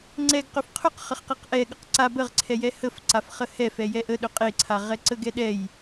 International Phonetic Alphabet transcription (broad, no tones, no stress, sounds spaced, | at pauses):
ŋ͡ǀ ɛ ɡ q ɵ f qʰ ɵ q χ ə χ q e q ʔ ɛ ɠ ə q ǀ a b ə ʁ ǀʰ ɛ j ɛ h ə f ǀ a f χ ə h ɛ f ɛ j ɛ ʔ ə ɗ ɵ qʼ e ǀʰ a ʁ ɛ ǀ ə ɡ ɛ ɗ ɛ j